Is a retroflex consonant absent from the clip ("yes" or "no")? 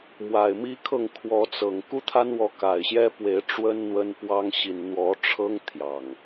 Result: no